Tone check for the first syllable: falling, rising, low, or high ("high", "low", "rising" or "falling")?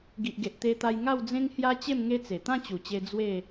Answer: low